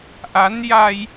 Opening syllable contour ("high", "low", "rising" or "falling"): rising